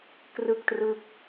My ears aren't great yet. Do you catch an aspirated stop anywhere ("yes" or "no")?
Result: no